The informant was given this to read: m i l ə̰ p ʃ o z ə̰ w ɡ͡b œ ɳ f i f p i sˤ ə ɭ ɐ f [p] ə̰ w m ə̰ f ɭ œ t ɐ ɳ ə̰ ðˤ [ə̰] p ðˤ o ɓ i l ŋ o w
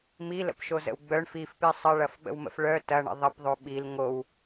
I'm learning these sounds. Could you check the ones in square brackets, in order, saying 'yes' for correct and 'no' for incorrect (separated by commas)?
no, no